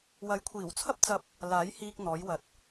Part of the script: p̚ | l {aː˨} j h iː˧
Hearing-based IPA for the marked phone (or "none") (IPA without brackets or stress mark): aː˨˥